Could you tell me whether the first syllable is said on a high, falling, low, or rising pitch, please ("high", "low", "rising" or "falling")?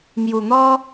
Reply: low